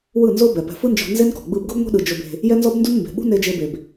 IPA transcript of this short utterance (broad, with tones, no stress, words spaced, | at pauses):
wɯ˦˨nzo˦bɛ˨pɛ̤˧ fɯ˦nd͡ʒɔ̤˧ nze˦nkɔ̤˨ ɡ͡bɯ˧bɡɤ˦bŋʷe̤˦ɗɯ˨ d͡ʒo˧b e̤˧ | jɛ˦nzɔ˦bndu˦n mbe̤˨ɓṳ˦ne˧ d͡ʒe˧be˨b